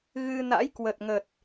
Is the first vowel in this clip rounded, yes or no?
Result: no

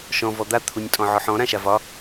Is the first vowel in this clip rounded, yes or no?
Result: yes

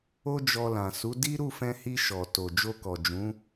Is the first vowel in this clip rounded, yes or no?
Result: yes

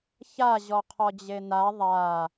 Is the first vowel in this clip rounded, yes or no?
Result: no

